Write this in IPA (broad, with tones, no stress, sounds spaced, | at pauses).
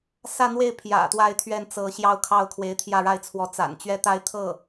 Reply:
s ä˥˧ n̪ w e˥˩ ɪ̯ pʰ j ä̰˨˩ t̪ w a˥˧ ɪ̯ t̪ʰ ɥ ɛ˥˩ n t͡s ɤ˧˥ ɕ j ɑ˥˧ ʊ̯ kʰ ɑ˥˩ ʊ̯ kʰ w e˧˥ ɪ̯ t̪ʰ j ä˥˧ ɻ a˥˩ ɪ̯ t͡sʰ w ɔ˧˥ t͡s a̰˨˩ n t͡ɕ ɥ ɛ˥˧ t̪ a˥˧ ɪ̯ t̪ʰ ɤ˥˩